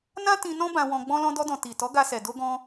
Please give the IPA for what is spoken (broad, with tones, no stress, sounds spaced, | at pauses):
n ã˦ t ĩ˧ n ɔ̃˦ b ã˧ w ɔ̃˧ ɡ͡b ɔ̃˧ l ɔ̃˧ d ɔ˧ d ɔ̃˨ t i˨ t ɔ˨˦ ɡ a˧ s ɛ˨ d o˧ ɡ ɔ̃˧